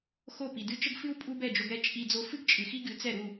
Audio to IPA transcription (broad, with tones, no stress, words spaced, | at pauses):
xo˥˩pi˩dɨ˥˩ t͡ʃə˥ɡfɨ˥w pʼu˥bɛ˥˩d͡ʒo˧ɡɾɛ˥ t͡ʃʼi˧ d͡zo˧fɨ˥ɡ t͡ʃʼɨ˩xi˥ɡɨ˩˥ t͡sɛ˥˩ ɾu˥˩